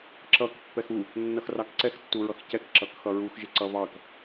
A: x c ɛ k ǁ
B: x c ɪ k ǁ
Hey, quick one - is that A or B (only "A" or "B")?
A